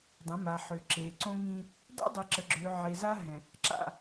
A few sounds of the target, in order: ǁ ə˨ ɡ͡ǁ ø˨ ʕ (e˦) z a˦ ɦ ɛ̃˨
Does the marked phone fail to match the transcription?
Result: yes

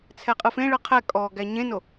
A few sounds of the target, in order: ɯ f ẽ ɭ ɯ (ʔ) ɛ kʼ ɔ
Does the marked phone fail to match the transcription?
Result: yes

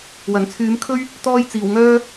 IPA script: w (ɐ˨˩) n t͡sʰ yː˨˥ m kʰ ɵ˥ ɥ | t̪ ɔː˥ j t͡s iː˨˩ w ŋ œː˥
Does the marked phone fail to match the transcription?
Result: no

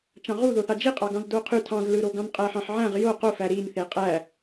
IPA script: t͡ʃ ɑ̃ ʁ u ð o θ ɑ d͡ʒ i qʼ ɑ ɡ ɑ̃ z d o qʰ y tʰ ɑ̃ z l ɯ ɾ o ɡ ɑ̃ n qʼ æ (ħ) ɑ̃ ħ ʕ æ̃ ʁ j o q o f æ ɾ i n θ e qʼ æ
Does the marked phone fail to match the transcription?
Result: no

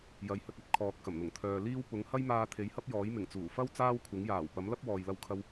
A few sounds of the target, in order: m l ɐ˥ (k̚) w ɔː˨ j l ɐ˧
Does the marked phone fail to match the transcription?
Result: yes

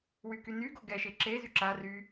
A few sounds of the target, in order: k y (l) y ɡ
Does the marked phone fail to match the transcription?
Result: yes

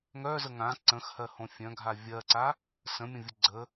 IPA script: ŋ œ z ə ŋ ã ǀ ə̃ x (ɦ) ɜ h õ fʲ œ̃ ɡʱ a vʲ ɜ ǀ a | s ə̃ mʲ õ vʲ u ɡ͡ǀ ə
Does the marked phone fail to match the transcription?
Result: yes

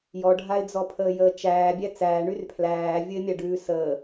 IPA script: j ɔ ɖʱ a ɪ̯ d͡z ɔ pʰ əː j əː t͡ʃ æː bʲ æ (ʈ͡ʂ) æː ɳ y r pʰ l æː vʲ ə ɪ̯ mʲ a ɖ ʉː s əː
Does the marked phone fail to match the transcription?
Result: yes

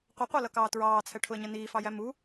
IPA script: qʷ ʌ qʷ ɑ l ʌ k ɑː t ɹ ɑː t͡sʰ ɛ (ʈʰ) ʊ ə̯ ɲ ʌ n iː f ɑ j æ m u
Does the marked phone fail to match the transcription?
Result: no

